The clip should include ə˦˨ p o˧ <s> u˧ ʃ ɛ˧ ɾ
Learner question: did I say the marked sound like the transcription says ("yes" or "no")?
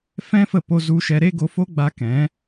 no